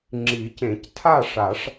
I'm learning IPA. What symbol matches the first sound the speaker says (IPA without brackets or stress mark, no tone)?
ŋ͡ǁ